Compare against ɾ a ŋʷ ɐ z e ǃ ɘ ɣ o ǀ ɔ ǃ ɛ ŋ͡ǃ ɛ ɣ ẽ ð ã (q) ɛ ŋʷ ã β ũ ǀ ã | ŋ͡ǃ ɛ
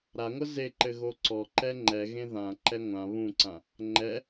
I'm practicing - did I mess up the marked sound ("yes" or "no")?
yes